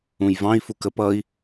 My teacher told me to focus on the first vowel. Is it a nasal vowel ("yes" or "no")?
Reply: yes